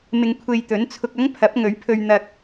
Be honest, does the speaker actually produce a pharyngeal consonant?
no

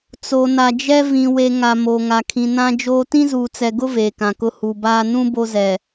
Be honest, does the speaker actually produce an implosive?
no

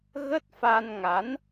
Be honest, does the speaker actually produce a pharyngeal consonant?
no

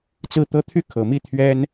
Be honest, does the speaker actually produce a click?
no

